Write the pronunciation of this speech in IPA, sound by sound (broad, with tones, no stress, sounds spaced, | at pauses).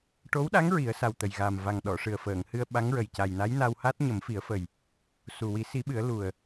ʈ o˧˥ w ɗ a˧˥ ŋ ɹ i˨˩˦ ə̯ s a˨˩ w t̪ ə˨˩ j ɣ aː˨˩ m v a˨˩ ŋ ɗ ɔ˨˩˨ ʂ ɨ˨˩ ə̯ f əː˨˩˨ ŋ h ɨ˧ ə̯ ɓ a˧˥ ŋ ɹ ə˨˩ j c a˨˩ j n a˧˥ j n a˧ w h a˦˥ t̚ ɲ ə˨˩˦ m f i˨˩˦ ə̯ f ə˨˩ j | s u˨˩ w i˨˩˦ s i˨˩˦ ɓ ɨ˨˩˦ ə̯ l u˨˩ ə̯